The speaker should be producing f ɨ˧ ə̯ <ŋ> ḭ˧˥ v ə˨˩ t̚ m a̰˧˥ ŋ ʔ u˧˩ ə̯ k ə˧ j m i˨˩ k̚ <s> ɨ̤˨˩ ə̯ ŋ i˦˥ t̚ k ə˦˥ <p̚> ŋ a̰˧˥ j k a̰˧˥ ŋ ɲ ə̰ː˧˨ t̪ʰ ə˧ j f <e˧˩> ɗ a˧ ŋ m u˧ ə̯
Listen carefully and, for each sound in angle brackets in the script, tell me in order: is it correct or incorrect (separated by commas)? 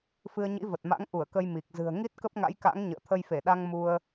incorrect, incorrect, correct, correct